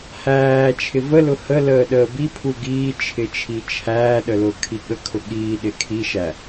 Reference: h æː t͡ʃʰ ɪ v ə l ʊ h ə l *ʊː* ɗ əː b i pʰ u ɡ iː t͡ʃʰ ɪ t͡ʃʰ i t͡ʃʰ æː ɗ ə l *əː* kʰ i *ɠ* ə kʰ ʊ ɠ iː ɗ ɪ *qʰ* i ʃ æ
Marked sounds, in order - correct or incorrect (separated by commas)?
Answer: incorrect, incorrect, correct, incorrect